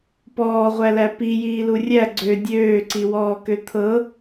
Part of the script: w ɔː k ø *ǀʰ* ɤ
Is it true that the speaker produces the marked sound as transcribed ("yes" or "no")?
no